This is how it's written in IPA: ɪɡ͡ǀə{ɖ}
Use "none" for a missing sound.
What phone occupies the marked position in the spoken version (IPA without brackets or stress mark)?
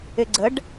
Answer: ɖ